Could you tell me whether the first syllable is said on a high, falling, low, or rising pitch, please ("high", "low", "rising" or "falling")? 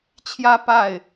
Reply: high